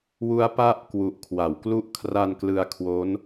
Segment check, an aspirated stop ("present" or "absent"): present